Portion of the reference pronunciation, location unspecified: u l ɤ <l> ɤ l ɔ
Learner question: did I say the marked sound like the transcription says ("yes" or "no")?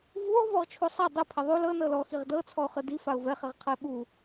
no